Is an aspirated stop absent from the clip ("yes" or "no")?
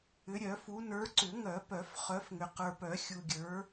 yes